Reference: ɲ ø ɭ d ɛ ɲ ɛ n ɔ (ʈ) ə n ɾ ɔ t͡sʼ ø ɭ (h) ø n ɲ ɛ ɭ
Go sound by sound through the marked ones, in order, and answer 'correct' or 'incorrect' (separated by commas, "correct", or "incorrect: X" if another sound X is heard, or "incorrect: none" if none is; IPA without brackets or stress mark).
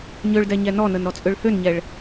incorrect: n, correct